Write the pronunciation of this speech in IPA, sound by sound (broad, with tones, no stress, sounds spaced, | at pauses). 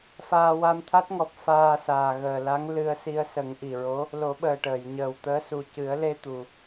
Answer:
f aː˧ w a˧ m t̪ʰ a˦˥ t̚ ŋ ɔ˨˩ p̚ f aː˧ s aː˨˩ ɣ əː˨˩ l a˧˥ ŋ l ɨ˧ ə̯ s i˧ ə̯ s ə˨˩˦ ŋ ʔ i˨˩ ɹ o˧˥ | l o˨˩˦ ɓ əː˨˩ ʈ əː˨˩˨ j ɲ əː˨˩ w t̪ əː˧˥ s u˨˩ c ɨ˨˩˦ ə̯ l e˧ t̪ u˨˩